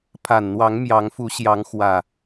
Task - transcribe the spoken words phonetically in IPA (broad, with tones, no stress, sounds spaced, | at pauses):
pʰ a˨˩ n n̪ w ɑ˨˦ ŋ m j ɑ˨˦ ŋ f u˨˦ ɕ j ɑ˨˦ ŋ x w ä˨˩